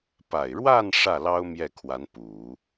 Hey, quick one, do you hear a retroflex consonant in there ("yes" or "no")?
yes